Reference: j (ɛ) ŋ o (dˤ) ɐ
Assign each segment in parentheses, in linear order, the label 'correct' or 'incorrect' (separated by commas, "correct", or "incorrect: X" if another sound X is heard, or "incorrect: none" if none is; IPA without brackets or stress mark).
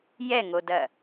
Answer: correct, incorrect: d